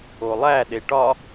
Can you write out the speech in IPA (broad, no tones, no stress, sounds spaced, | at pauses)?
o lˠ æ ɗ e ʈ ɒ